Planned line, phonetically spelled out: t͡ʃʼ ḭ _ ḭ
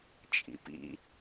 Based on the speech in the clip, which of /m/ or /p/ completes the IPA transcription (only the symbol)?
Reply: p